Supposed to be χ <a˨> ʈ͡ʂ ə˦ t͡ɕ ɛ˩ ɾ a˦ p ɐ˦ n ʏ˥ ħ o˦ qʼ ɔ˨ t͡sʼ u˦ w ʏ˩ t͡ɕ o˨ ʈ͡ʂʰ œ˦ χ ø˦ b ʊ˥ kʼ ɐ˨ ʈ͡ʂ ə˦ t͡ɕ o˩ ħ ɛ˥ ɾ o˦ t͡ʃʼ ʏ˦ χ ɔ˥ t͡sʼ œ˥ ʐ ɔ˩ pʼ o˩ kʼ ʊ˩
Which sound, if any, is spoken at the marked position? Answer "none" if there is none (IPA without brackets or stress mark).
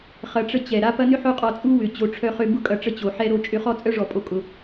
ɐ˨